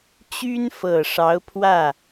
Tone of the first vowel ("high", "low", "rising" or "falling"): high